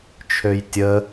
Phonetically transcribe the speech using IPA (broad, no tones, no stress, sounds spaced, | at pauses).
t͡ʃʰ ø j tʲ ə